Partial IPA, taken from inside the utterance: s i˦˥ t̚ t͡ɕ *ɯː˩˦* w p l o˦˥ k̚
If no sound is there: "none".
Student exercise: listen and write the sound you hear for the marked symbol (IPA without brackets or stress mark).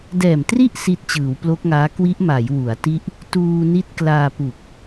ɯː˩˦